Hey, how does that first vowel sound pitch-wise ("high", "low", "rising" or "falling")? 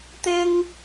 high